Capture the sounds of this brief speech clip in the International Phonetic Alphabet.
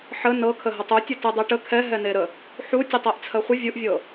ħə nɤkʰə ɦətˤu tʲətɨdˤɛʈə kʰɛɦɛneɾə | ħu tʲɨtˤɜʔt͡sʰɜχʷə vʲuʔvʲɤ

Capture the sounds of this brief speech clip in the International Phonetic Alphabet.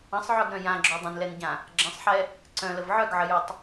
ə̃sˤʕœɡɾœ̃ jãɡ͡ǁo dˤə̃nlɛnɟã | ɡ͡ǁə̃sˤħɛ | ǀœ̃ləv ʕœɡʕəjotˤ

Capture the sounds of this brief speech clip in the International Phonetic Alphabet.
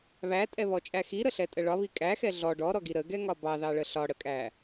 βætʼɛβɔt͡ʃʼæ xiɾəɬɛtʼə ɭɒβi kʼæxɛ ɮɔ ɖɔɾɔɡi ɾəɡɛŋɒ bɑðɑɭə ɬɒɽəkʼæ

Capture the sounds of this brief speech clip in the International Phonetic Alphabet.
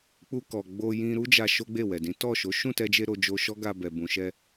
k͡pu˧kɔ˨ ɡ͡bo˧jĩ˧ ɾu˦d͡ʒa˧ ʃo˦ɡ͡be˦˨wɛ˨dĩ˨˦ tɔ˦˨ ʃo˨˦ ʃũ˦˨tɛ˧d͡ʒe˧ɾo˨ d͡ʒo˧ʃɔ˦ɡa˧bɛ˨ bũ˨ʃɛ˧

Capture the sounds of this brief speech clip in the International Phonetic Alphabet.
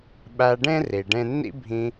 ɓæ˧ɖẽ˦ ri˨ɖẽ˦ nːḭ˦bʱĩ˧

